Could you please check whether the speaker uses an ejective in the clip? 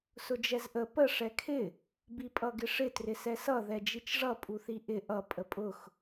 yes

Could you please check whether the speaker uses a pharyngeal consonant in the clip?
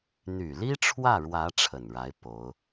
no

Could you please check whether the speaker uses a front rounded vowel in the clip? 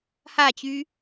yes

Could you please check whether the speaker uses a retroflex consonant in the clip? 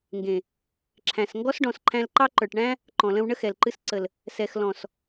yes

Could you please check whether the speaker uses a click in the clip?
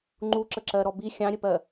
yes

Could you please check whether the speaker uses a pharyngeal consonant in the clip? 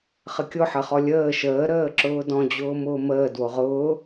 yes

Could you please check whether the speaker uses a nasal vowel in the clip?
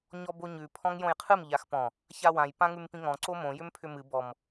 yes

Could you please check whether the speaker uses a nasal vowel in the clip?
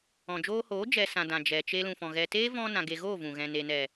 yes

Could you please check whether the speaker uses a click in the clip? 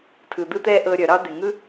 no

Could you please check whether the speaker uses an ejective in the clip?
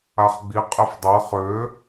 yes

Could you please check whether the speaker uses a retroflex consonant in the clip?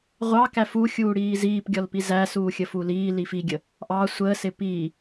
yes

